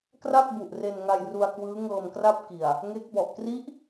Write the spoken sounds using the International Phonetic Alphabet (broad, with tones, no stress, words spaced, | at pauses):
kra˥˩k̚ bu˨˩ʔre˧nŋa˧jru˧a̯ kwɯː˦˥ ŋɤː˧mkra˥˩p̚ki˨˩a̯ | ŋe˦˥k̚ bɔ˨˩ʔ kri˦˥ʔ